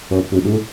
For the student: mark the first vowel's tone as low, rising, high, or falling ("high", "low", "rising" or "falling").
low